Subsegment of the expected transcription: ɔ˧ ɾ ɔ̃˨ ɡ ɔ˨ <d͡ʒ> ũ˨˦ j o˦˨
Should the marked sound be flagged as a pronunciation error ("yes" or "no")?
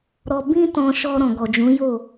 no